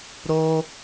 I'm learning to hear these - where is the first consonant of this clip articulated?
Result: tongue tip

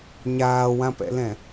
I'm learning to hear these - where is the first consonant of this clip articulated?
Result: palate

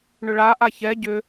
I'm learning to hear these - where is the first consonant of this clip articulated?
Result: retroflex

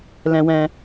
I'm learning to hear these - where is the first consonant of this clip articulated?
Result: tongue tip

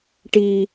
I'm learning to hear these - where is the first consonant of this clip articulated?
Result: retroflex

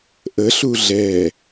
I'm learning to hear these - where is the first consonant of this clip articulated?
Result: throat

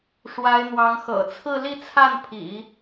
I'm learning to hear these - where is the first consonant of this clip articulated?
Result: retroflex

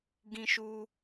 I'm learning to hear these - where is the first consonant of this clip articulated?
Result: velum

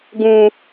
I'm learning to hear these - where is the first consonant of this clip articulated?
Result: velum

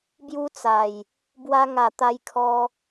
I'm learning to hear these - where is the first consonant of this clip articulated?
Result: lips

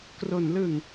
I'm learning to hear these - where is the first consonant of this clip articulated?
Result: velum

